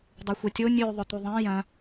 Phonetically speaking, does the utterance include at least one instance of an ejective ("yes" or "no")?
no